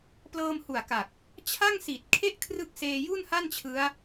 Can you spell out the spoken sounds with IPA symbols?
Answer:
p l ɤː˧ m h u˨˩ a̯ k a˨˩ k̚ | t͡ɕʰ a˥˩ ŋ s i˨˩ t̚ kʰ e˥˩ ʔ kʰ r ɯ˦˥ k̚ s eː˧ j u˥˩ n h a˥˩ n t͡ɕʰ ɯ˦˥ a̯

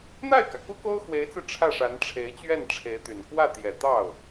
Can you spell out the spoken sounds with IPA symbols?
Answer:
n̪ a˥˩ ɪ̯ k ä˩ k u˥ k o˥ ʊ̯ x w e˧˥ ɪ̯ t͡s ɹ̩˧ ʈ͡ʂʰ ä˥˩ ʂ a˧˥ n ʈ͡ʂʰ e˧˥ ɪ̯ t͡ɕ ɥ ɛ˥˩ n ʈ͡ʂʰ e˧˥ ɪ̯ t̪ y˨˩ n k w ä˥˩ t̪ j ɛ˨˩ t̪ ɑ˥˩ ʊ̯

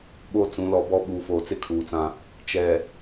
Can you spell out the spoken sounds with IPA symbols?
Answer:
ɓ o˦˨ t͡s ũ˨˦ l ɔ˨˦ b ɔ˦ ɓ uː˨ f oː˨ t͡s ɪ˦ kʰ uː˨ t͡s ã˦ | t͡ʃ ɛ˨

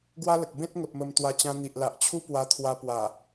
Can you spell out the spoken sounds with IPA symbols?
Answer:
ɡ w a˦ l ə˨ k̚ b ẽ˦ t̚ ŋ ə˨ p̚ m ə˧ m t̪ w a˧ t͡ɕ ã˧ n̪ i˨ ʔ l a˨ ʔ t͡ɕʰ u˦ p w a˧ t̪ʰ w a˧ p w a˨˩

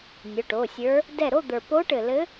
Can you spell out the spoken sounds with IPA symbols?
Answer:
nʲ ʊ˩˧˩ ʈ o˩˧˩ sʲ ə˞˧˥ | d ɛ˧˩ ɾ o˥˨ d̪ ə˞˩ p o˧˥ ʈ ɘ˩ l ɘ˧˥

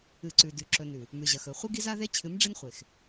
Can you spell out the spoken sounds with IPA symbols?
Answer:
ɨ˨ ǀ ʉ˨ d ʉ˨ ǁ ɵ˨ n ʉ˨ | m ʉ˨ ʑ ɐ˨ x ɵ˨ χʷ ɨ˦ ɡ i˦ z a˦ ð e˦ t͡ɕʰ ɨ˨˦ m ɖ͡ʐ ɨ˦ n χʷ e˨ x

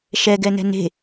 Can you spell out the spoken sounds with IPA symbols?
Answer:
ʃ ɛ ɡ ɛ n ɛ̤ n e̤

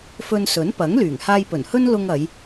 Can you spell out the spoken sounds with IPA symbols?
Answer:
f ɵ˧ n s ɵ˨˥ n p ɐ˨˥ ŋ l yː˨˩ ŋ h aː˧ j p ɵ˨˩ n h ɵ˥ n l ʊ˧ ŋ ɐ˨˧ j

